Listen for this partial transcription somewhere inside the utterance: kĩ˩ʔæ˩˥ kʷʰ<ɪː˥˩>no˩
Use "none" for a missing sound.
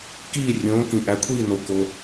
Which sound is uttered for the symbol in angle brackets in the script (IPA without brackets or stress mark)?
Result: iː˥˩